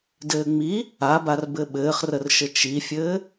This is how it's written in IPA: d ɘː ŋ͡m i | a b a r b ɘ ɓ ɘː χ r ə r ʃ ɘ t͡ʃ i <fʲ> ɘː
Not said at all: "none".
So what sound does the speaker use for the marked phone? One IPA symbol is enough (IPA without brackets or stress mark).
fʲ